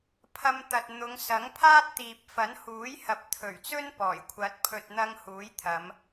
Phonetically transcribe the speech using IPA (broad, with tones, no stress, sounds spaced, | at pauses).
pʰ ɐ˧ m t̪ ɐ˨ t̚ n̪ ʊ˨˧ ŋ s ɐ˨˥ ŋ pʰ aː˥ t̚ t̪ iː˨ p̚ f ɐ˨˥ n h uː˨˥ j h ɐ˨˥ p̚ t̪ʰ ɵ˨˩ ɥ t͡s ɵ˥ n p ɔː˨˩ j kʷʰ ɐ˨˥ t̚ pʰ ɵ˨ t̚ n̪ ɐ˧ ŋ h uː˨˥ j t̪ʰ ɐ˨˧ m